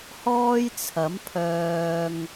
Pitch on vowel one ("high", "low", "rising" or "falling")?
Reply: high